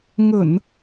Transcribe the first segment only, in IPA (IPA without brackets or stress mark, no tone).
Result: ŋ